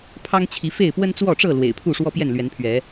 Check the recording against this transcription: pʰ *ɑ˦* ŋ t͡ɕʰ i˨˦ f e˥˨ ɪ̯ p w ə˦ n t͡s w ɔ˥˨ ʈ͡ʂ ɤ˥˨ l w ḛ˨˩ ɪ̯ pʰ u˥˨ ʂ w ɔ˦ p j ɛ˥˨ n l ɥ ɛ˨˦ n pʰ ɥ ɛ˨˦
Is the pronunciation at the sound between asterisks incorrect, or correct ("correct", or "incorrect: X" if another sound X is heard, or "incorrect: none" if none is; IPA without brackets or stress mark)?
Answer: correct